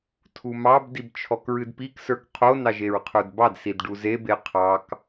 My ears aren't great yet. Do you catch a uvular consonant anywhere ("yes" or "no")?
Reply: yes